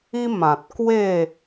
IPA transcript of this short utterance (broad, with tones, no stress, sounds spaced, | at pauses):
i˦ m ã˨ t̚ k w e˥˧